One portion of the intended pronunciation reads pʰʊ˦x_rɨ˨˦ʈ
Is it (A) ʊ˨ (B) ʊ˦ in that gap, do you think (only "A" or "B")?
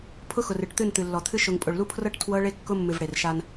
A